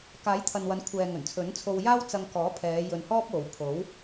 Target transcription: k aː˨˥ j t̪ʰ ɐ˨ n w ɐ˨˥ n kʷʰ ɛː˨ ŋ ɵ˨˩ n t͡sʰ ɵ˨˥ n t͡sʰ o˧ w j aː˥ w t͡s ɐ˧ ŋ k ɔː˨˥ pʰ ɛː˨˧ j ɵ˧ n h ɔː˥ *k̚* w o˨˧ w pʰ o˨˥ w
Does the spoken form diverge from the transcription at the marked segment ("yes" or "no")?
yes